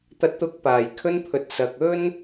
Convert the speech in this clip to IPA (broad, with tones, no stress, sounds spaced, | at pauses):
t̪ ɐ˨˥ t̚ t̪ ʊ˨˥ k̚ p aː˨˩ j kʰ ɵ˧ n pʰ ɵ˨ t̚ s ɐ˨ k̚ ɵ˥ n